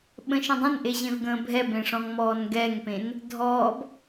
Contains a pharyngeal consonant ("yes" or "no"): no